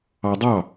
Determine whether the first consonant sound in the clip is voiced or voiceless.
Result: voiced